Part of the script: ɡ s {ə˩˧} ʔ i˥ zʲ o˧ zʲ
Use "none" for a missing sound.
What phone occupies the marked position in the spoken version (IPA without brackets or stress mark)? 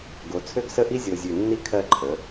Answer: ə˥˧